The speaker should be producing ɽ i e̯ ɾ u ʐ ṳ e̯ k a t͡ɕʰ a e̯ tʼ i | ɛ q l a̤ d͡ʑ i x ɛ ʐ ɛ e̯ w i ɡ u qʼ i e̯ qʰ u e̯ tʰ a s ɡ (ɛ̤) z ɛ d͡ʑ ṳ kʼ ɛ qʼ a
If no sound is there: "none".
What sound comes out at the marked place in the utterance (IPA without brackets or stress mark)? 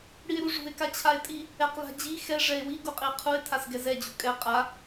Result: ɛ